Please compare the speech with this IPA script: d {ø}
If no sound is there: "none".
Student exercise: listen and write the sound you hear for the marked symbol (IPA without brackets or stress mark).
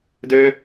ø